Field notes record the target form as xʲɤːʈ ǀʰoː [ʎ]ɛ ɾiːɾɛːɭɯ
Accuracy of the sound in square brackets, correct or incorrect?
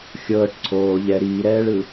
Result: correct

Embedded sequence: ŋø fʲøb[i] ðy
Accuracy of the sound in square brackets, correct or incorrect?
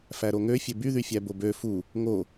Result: incorrect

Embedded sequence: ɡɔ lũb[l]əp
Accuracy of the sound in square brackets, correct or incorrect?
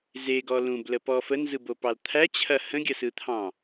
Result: correct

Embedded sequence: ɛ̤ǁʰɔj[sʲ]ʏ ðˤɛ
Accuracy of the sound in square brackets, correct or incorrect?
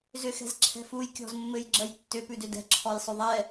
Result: incorrect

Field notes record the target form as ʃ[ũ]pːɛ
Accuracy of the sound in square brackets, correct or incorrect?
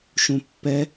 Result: correct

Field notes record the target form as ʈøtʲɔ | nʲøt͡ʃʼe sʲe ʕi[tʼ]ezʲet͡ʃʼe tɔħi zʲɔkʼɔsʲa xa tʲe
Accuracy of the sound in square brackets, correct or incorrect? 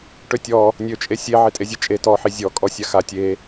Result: correct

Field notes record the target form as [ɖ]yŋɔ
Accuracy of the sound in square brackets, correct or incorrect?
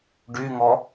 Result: correct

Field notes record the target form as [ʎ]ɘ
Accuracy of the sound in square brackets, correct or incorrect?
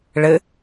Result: incorrect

